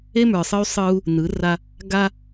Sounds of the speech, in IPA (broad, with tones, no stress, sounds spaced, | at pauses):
e˦ m ə˞˨ sˤ ɯ˦ y̯ sˤ ɯ˦ u̯ | n ɯ˨˦ r a˦ | ɡ a˦